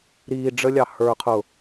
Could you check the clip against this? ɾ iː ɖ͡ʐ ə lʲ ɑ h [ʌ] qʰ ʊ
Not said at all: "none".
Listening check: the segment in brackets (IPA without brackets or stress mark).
ə˞